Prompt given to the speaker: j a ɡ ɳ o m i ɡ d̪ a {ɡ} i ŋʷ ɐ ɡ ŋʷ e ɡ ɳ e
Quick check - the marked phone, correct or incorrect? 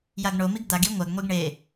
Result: correct